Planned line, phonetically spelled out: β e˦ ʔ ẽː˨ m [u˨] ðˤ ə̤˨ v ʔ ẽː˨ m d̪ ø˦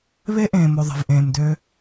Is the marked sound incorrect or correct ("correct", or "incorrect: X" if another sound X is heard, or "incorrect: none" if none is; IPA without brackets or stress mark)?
incorrect: o˨